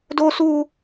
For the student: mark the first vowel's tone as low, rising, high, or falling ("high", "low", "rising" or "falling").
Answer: high